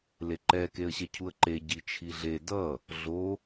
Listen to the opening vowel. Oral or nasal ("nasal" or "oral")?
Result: oral